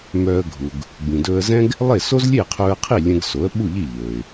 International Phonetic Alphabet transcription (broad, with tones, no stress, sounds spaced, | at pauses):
m œː˧ ə̯ ɡʱ u˩ ɡ | b ĩ˩ d ɵː˧ ə̯ z ɛ̃˥ ɡ | lˠ e˥˩ s o˥ z lʲ e˥˩ qʰ ɵː˧ ə̯ qʰ i˥˩ lʲ ɛ̃˧ ɡ s o˩˥ ə̯ ɓ u˥˩ ʎ i˥˩ ʎ ɵː˩ ɪ̯